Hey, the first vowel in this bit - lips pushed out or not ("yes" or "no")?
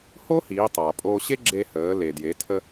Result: yes